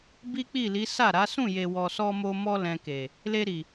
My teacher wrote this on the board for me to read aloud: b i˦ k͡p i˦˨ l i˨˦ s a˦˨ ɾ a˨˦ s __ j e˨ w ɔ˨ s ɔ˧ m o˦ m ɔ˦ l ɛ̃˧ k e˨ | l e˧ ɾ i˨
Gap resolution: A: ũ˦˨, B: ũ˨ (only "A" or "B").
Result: A